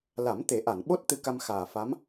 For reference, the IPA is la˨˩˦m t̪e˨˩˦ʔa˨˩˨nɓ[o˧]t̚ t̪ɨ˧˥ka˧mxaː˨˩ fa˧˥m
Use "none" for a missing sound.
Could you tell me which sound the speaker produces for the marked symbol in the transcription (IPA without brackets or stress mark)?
o˦˥